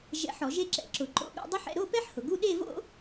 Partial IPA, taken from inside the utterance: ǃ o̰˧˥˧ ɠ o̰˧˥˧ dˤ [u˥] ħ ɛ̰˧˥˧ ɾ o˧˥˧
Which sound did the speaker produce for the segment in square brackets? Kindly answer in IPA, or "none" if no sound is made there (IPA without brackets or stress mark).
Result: ʊ˥